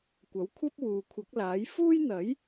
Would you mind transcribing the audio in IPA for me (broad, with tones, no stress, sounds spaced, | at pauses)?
kʷ ɐ˨˥ w kʷʰ ɐ˥ p̚ w uː˨ kʷʰ ɐ˨˥ k̚ l aː˨˥ j f uː˥ j n̪ ɐ˨˥ j